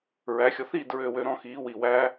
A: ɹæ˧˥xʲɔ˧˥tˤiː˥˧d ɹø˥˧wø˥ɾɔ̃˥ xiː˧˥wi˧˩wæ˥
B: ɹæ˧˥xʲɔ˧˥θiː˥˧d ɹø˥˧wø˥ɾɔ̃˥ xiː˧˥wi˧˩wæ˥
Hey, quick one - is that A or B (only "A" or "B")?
B